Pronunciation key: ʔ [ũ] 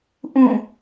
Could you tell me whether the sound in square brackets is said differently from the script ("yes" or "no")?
no